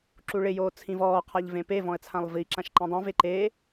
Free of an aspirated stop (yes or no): no